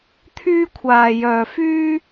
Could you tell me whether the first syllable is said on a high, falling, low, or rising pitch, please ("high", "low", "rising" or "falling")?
high